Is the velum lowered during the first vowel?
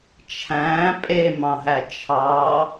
yes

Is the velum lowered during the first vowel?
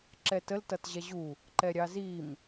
no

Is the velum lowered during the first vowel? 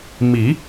no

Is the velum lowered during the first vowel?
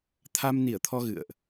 no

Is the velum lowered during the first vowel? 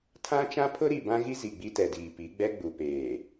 yes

